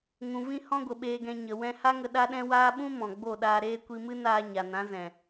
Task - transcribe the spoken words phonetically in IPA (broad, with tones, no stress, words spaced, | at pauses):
ŋũ˨vĩ˧ hɔ̃˦ɡʷə˨ɓeː˧ɡɛ̃˧ ɲə˨ wɛ̃˧ ha˦ŋə˧ ɗa˦ɗɛ̃˦waː˦ ɓũ˦ mɔ̃˨ɡ͡bo˦˨ɗaː˧ɾeː˦ kʷi˧mɨ˦naː˧ ɲa˨nã˨˦ zɛ̃˨